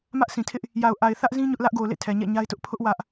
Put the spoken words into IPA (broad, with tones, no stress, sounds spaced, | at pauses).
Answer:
m ä˦ ʔ s ĩ˨ tʰ ɪ˦ ʔ | j a˨ ʊ̯ ʔ a˨ ɪ̯ θ ä˦ ʔ z ĩ˦ ɲ ʊ˦ ʔ l ä˦ ʔ ɡ o˨ ʊ̯ l ḛ˦˨ tʰ ɛ˨ ɲ ɛ̰˦˨ ɲ a˦ ɪ̯ t ʊ˦ ʔ pʰ ʊ˦ ʔ w ä˦ ʔ